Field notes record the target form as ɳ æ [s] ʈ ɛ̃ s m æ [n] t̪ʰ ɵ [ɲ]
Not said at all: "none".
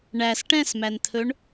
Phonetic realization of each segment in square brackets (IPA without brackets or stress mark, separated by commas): s, n, ɳ